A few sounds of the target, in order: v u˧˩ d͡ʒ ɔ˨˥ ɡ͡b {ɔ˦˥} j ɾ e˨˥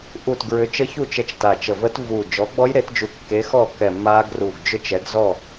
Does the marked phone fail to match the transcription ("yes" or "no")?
no